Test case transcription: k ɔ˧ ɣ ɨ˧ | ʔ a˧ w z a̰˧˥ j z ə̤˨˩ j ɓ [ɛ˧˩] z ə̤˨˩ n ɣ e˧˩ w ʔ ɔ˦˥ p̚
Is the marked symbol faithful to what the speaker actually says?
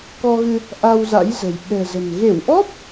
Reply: no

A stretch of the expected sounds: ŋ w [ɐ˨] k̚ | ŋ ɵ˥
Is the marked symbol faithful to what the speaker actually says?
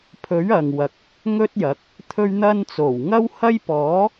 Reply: yes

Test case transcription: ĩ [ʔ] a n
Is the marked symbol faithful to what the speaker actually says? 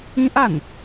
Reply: yes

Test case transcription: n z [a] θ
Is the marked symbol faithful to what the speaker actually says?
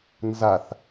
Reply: yes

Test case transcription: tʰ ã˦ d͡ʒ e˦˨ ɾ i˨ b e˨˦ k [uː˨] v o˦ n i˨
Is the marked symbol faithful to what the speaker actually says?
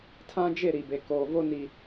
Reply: no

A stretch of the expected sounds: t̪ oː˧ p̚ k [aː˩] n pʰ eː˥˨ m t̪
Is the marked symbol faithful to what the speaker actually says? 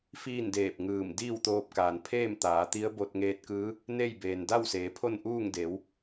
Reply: yes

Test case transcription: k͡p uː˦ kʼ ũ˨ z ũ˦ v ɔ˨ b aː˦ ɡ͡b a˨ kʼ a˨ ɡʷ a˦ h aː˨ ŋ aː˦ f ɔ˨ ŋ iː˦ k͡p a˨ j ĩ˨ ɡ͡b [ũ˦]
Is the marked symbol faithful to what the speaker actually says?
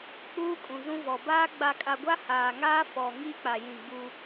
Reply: no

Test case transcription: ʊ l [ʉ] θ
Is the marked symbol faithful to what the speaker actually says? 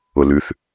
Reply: yes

